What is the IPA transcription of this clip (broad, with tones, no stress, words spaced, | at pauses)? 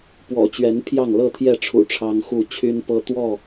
pwɔ̰˨˩t͡ɕɥɛ˨˦n pʰjɑ˥˨ŋlɤ˥˨t̪ʰjɛ˥˨ʈ͡ʂʰṵ˨˩ ʈ͡ʂʰɑ˦ŋxu˥˨ t͡ɕʰy˦npɤ˦ t̪wɔ˥˨